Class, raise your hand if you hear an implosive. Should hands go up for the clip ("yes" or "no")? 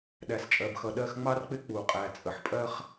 yes